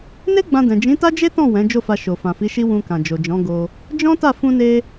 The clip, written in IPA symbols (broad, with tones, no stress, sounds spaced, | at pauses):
n e˦ ɡ͡b ã˧ d ɛ̃˨ d͡ʒ ĩ˨˦ t a˦ d͡ʒ e˦ t ɔ̃˦˨ w ɛ̃˨˦ d͡ʒ o˦˨ f a˧ ʃ o˨ f ã˨ f i˨˦ ʃ i˦ w ũ˧ k ã˨ d͡ʒ o˨ d͡ʒ ɔ̃˨˦ ɡ o˧ | d͡ʒ ɔ̃˦ t a˦˨ f ũ˧ n e˧